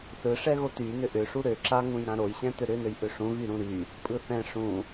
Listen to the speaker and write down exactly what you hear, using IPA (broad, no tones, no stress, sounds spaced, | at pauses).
s ɯ ʂ ɛ ɣ o t y n ʏ ʔ ʏ ʂ u ɾ ø ǁ a ŋ ũ j ɾ ã ɾ o j ɕ ɛ̃ t ʏ ɾ ʏ n ø j ʔ ʏ ʂ ũ ɣ y ɾ ũ ɾ y | pʼ ɯ θ ɛ̃ ʂ ũ